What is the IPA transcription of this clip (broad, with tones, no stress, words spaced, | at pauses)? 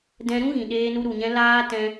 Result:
dɛ̃˦ ɾũ˦ɣĩ˨ ɗeː˧nu˧ɾu˨ɲɛ̃˧ laː˦ tɛ̃˧